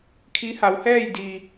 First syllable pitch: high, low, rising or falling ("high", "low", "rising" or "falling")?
rising